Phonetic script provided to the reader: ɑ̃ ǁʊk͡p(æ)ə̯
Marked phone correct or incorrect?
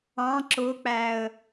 correct